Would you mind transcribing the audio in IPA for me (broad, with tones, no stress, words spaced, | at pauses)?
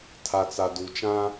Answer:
tʰa˨t͡sa˨du˨t͡ʃã˦